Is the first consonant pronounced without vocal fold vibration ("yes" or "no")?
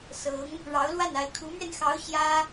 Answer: yes